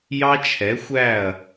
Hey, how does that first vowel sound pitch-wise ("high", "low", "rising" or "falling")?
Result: high